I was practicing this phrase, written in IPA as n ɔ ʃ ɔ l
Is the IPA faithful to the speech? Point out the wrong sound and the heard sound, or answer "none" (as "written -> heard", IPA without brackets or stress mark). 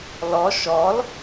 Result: n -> l